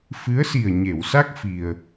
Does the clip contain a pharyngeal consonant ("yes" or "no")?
no